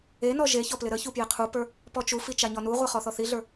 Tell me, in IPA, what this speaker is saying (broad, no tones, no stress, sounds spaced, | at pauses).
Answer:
e n ɔ ʒ e ç ɔ p l ɪ ɾ ə ç u p j e qʰ u p ə˞ | p ɔ t͡ʃ u f i t͡ʃ a ɲ ɔ n u ʁʷ a χ ɔ θ ɔ θ i ɮ ə˞